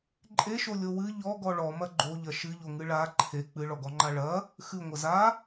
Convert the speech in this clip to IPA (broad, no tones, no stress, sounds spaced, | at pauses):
ǃʼ e ʃ o lʲ o w ɨ ʎ ɔ ɡ ɔ ɭ ɔ m ɐ ɡ͡ǃ o ʎ ɐ ʃ ɨ ʎ o ŋ ɨ ɭ a ǃʰ e k͡p ɨ ɭ ɔ ɡ ɔ ŋ͡ǃ a ɭ ɐ | x ɨ ŋʷ ɐ z a